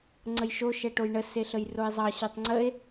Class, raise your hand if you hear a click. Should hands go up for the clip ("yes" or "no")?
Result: yes